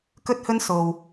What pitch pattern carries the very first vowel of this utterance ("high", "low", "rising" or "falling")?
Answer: high